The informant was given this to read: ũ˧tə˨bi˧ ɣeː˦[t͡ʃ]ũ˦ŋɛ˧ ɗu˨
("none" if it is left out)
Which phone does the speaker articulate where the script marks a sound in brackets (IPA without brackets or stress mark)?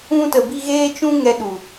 t͡ʃ